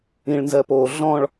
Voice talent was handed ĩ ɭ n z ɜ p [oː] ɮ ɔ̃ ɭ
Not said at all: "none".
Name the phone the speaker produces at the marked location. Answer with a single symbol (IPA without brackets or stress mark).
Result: oː